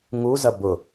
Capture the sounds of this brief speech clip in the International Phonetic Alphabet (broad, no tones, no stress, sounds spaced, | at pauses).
ŋ u z ɐ b ʊ